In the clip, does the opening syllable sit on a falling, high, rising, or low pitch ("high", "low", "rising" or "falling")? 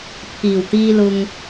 low